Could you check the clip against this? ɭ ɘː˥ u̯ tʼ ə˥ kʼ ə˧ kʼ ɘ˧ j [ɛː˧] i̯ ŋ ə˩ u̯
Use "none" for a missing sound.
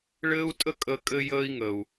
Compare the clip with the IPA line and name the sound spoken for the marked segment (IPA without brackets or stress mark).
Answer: əː˧